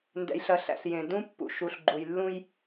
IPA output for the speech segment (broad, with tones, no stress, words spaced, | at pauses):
ndɛ̰˨jɬɐ˨ɬæ̰˨ɬ jẽ˨dũ˦ pːṵ˨ ʃu˨ɬɡ͡ǃu˨jlːũ˦j